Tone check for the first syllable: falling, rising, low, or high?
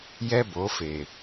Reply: high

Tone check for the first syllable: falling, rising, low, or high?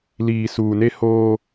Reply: low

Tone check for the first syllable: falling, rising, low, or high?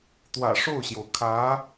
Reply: low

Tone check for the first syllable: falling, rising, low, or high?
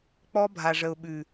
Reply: high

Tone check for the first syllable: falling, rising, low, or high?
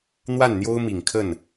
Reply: falling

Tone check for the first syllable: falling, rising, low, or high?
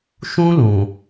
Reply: high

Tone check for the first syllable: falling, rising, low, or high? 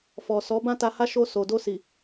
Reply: low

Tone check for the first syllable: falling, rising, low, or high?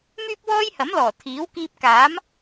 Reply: high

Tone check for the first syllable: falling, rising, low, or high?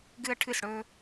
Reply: high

